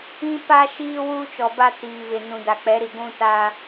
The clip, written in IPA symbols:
ĩ˦pa˦ʃiː˦ wuː˦t͡ʃɔ˨ba˦ tiː˨βɪ˨ nũ˨da˨k͡pɛ˨˦ɾi˨ ɡʷũ˦ta˦

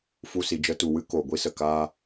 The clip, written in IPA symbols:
fu˧si˨ d͡ʒə˧tu˨wɨ˦ koː˨ɡʷi˦sə˨ kaː˧

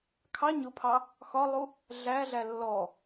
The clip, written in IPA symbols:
kʰɑ ɲʊpʰɑ | xɒlˠu | ɮæɮæ lːɔ

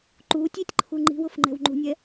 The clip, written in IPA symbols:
ǃuːtʲ itʲǃʰu ŋ͡ǃi̤wʊf ŋ͡ǃɛ̤wŋ͡ǃṳnʲɛ

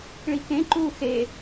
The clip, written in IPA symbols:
ɭikẽǃuː xe

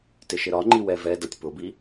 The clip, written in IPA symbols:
tɪʃɪɾɒŋ͡ǃi wɛvɛdʌtʲ pʊbi

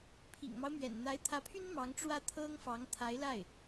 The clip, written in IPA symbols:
pʰḭ˨˩ŋmɑ˦ʊ̯ mɥɛ̰˨˩nn̪a˧˥ɪ̯t̪ʰä˧˥pʰy˥n mɑ˧˥ŋʈ͡ʂwä˥˩t̪ʰɤ˥ŋ fɑ˧˥ŋt̪ʰa˧˥ɪ̯la˥˩ɪ̯

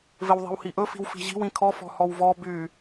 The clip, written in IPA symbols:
vɪwðˤi̤whiʔɵ fi̤wfi̤ʑi̤w ĩkʰɔ fɔ̤hɔwvɔ by

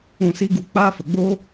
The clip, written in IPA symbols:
ũ˦˨si˦ɡu˦˨ k͡paː˦fə˨ɡ͡boː˦

